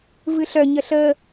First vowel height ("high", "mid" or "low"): high